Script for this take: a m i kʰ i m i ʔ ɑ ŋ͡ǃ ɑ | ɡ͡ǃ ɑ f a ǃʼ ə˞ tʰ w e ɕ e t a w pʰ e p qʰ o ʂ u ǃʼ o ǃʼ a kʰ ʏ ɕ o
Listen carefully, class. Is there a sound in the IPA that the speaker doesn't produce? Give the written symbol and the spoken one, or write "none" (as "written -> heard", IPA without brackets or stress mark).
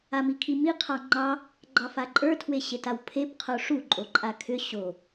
ʔ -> qʰ